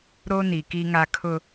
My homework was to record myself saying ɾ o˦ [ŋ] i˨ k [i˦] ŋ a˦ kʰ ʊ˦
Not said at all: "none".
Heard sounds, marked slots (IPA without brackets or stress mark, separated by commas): n, i˦